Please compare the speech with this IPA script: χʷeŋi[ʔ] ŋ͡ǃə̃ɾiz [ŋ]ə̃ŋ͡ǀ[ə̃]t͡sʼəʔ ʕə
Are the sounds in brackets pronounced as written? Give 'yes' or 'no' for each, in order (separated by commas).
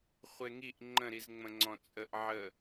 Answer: yes, no, no